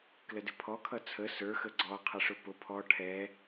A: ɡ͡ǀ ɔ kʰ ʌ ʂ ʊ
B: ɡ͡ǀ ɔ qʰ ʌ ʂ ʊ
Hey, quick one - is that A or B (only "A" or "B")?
B